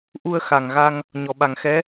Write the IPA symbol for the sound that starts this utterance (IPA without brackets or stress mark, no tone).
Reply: ʔ